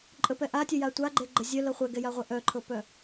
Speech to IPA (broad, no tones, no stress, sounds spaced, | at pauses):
ǃʼ ə p ɛ ʔ a tʲ œ j a tʷ a ɡ͡ǃ e ɡ͡ǃ ə zʲ œ l ɤ χʷ ɛ ɡ ɛ j a ʁʷ e ʔ œ ǃʰ ɤ p œ